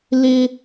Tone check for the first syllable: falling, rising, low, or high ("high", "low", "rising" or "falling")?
high